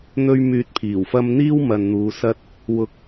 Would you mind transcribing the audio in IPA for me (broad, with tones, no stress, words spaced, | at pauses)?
n̪ɵ˧ɥ myː˧t̚pʰiː˨˩wfɐ˥m n̪iː˥wmɐ˨n n̪uː˨˧sɐ˥t̚ | wʊ˨k̚